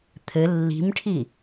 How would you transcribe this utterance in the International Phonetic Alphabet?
t̪ʰ ɘ lː i̤ m ʈʰ i

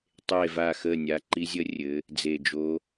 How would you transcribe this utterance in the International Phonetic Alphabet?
tˤ e˧˩ v a˧˩ x ə˧˩ nʲ a˩˧˩ ǃ i˧˥ zʲ ə˧˥ rʲ ɘ˩˧ | d͡z e˧˩ d͡ʒ o˧˥

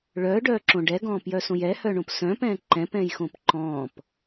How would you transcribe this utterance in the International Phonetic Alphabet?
ɭ œː ɖ œː ǁ õ ɖ ɛ ɡ ɔ̃ː p j œ s õ j ɛ h œ ɳ õ p s œ̃ p ɛ̃ː ǃ ɛ̃ p ɛ̃ j x õ p ǃ ɔ̃ː p

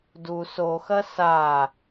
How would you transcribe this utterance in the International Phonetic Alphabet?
d u s o x ɐ s a

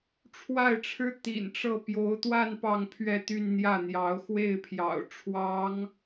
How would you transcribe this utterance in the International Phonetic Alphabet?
ʈ͡ʂʰ w a˥˩ ɪ̯ ʈ͡ʂʰ ɻ̩˥ t̪ ḭ˨˩ n ʈ͡ʂ ɤ˥˩ p j o˧˥ ʊ̯ t̪ w a˥˧ n p ɑ˥˧ ŋ pʰ ɥ ɛ˥˧ t̪ y˥˧ n n̪ j ä˥˩ n̪ j ɑ˧˥ ʊ̯ x w e˥˩ ɪ̯ pʰ j ɑ̰˨˩ ʊ̯ ʈ͡ʂʰ w ɑ˧˥ ŋ

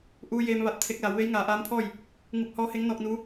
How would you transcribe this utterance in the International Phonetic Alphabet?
ʔ uː˧ j eː˧ m ʋ a˧˩ t̚ t̪ʰ e˧ k̚ l a˩˧ w ʋ e˧˥ j ŋ aː˩˧ ʔ aː˧˥ m pʰ ɔː˥˨ j | ŋ u˧ p̚ h ɔː˧˥ h e˧˥ ŋ n ɔː˧ k̚ n uː˧˥

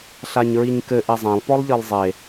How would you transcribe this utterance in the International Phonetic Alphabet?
ɬ a ɲ ɹ i ɲ k ɘ ʔ e zˤ ã lˠ p ɔ lˠ ʎ ɘ lˠ zˤ e

